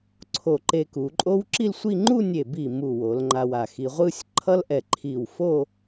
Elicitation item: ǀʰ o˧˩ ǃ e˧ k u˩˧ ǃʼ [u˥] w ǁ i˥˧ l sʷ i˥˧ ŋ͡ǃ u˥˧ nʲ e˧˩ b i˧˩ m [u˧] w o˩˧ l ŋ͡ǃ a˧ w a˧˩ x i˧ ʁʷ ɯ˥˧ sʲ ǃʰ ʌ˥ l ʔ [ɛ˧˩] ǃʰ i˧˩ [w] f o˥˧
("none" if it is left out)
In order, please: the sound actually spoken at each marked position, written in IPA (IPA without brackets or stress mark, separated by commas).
o˥, u˧˩, ɛ˧˩, w